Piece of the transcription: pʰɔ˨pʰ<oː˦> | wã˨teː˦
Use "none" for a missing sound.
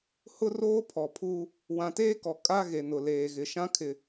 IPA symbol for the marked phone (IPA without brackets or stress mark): uː˦